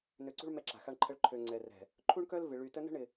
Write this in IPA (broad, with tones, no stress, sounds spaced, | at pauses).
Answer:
n ø˨ ǀ ṳ˦ ɭ m ɛ˦ ǁ a̤˨ x a˦ ɳ ǃʰ ə˦ ɭ ǃʰ ø˨ ŋ͡ǀ ɛ˨ r ɛ̤˨ | ǃʰ u˦ ɳ k œ˦ l v ɪ˨ ɭ y˨ t ə˦ n ə̤˦ ɳ ɪ˨